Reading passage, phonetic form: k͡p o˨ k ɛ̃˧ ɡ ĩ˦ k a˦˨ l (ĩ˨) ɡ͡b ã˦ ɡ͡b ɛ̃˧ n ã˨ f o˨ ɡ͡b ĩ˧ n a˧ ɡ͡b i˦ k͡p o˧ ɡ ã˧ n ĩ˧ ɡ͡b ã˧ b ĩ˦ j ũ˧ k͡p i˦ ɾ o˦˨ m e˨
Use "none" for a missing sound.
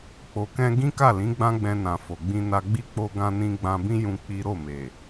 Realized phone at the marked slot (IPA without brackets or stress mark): ĩ˨˦